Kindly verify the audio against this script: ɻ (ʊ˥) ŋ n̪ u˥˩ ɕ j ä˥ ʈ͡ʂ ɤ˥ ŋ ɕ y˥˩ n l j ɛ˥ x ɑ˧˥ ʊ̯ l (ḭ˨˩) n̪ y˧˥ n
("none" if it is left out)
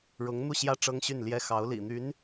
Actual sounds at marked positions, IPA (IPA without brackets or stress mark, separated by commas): ʊ˧˥, ḭ˨˩